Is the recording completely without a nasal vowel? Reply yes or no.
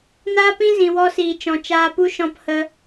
no